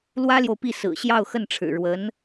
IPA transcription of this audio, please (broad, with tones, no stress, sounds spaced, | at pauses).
l w ä˥ l j o˨ ʊ̯ p i˥˩ s ɹ̩˨˩ ɕ j ɑ˥˧ ʊ̯ x ə˥˩ n ʈ͡ʂʰ ɻ̩˨˩ ɻ w ə˧˥ n